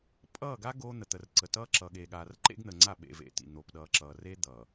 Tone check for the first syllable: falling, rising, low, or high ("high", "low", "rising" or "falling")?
falling